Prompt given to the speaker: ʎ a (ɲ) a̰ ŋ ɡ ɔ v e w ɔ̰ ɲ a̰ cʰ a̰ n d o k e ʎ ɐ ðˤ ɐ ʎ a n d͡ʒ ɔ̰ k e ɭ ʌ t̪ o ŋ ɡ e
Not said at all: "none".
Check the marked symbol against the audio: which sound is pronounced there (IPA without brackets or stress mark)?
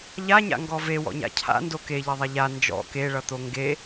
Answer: ɲ